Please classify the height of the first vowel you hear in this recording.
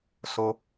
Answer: mid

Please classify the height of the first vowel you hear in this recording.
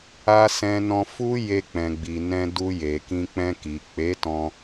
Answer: low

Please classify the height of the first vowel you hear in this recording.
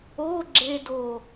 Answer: mid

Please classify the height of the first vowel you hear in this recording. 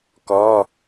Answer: mid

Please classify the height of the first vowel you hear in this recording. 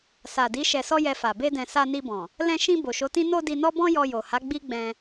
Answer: low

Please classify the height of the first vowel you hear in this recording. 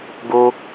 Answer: mid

